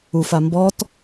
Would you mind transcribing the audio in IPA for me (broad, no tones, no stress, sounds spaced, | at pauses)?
u f a m b ɔ t